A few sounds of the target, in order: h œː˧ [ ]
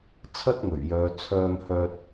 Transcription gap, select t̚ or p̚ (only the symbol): t̚